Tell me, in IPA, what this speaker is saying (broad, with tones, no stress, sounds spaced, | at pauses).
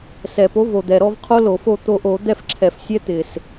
s ɛ˨˩ p o˨˥ v o˨˩ d̪ ɛ˨˩ ɾ ɔ˥˧ v qʰ o˦˥ l o˧˩˧ f o˥˧ t̪ o˧ ʔ o˧˩˧ d̪ ɛ˥˧ f ǁʰ ɛ˧˩˧ f sʲ ɛ˦˥ t̪ ɪ˨˩ s